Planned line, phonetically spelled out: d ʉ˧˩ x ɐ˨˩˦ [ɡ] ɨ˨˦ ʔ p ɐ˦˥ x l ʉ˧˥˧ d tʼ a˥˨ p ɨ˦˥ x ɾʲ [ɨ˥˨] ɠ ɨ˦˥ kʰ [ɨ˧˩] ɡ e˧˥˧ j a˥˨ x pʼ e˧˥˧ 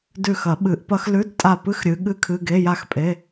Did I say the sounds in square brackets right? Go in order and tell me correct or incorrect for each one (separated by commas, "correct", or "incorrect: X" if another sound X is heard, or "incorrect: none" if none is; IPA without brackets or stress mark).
incorrect: ɓ, incorrect: ɨ˨˦, incorrect: ɨ˧˥˧